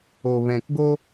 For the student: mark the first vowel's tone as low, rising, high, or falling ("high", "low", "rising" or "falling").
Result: low